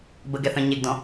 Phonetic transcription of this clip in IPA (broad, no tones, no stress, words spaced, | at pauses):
bəɡɛθœ̃ ɲeɡdɔ̃